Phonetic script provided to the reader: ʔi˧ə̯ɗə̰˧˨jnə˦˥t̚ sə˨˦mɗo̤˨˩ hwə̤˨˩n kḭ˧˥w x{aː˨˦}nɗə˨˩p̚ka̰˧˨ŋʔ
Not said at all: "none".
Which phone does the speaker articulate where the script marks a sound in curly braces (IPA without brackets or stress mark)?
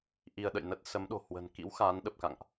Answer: aː˨˦